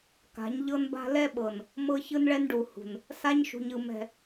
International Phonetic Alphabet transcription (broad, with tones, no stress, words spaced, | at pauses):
ka̤˨˦ɲʎɤ˦nba̤˦ lɛ˦ɓɤ˨n | mɤ˦çɯ˦nɭɛ˦nɖu˨ hṳ˨n | sa˦ɲʃṳ˨ɲɯ˨ mɛ̤˨